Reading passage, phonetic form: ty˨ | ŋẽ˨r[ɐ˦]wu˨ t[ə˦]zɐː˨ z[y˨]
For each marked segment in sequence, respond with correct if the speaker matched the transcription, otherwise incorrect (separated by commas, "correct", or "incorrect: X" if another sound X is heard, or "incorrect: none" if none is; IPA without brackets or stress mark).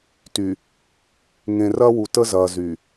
correct, correct, correct